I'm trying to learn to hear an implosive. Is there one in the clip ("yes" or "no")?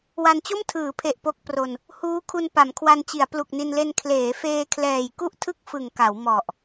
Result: no